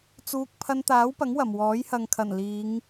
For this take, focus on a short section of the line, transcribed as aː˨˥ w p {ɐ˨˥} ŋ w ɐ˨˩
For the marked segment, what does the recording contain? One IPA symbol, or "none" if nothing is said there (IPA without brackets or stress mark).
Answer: ɐ˨˥